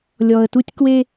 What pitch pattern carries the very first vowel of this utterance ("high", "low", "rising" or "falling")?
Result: low